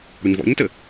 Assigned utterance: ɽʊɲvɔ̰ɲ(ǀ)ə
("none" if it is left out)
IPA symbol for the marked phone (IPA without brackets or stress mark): t